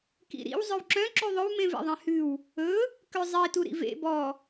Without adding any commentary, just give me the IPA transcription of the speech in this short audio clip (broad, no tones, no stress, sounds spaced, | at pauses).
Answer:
k ḭ ɾ ḭ w zˤ œ w ǁ œ̃ ǁ y ðˤ ɵ w m ẽ v ḛ ðˤ ẽ h ʉ w | ɵ | k ø zˤ i t u ɾ ḭ v ḛ b ɔ